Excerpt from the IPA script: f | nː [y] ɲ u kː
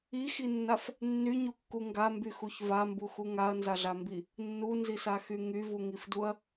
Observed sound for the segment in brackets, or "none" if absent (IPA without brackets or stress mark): y